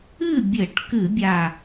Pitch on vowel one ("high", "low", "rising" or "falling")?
falling